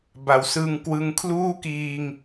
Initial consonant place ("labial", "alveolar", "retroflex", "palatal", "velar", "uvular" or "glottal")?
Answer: labial